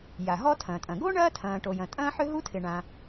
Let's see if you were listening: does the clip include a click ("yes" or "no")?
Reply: no